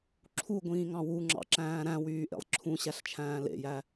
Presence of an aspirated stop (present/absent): present